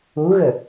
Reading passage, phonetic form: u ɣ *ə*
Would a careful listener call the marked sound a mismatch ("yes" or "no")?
no